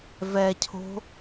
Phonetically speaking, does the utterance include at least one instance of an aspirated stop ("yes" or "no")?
yes